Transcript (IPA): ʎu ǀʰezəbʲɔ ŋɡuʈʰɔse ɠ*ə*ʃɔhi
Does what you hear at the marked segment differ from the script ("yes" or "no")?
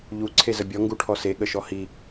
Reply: no